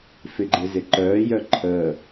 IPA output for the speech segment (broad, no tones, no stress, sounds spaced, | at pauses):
f ɪ ɡ͡ǃ ɪ z ɪ ǃ œː j œ ǃʰ əː